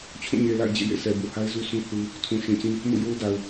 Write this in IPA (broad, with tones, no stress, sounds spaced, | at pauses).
t͡ɕʰ ũ˦˨ ɲ e˨ l a̰˦˨ ɪ̯ d͡ʑ ḛ˦˨ j ḛ˦˨ sʰ ɛ˨ b u˨ h a˦ ɪ̯ z u˦ sʰ ũ˦ θ u˦ | tʰ ũ˨ ʃ ĩ˨ t͡ɕ ĩ˦ | m ṵ˦˨ j o˦ ʊ̯ d a˨ ʊ̯